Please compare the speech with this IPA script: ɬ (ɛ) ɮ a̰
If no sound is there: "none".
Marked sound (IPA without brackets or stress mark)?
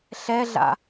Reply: ɛ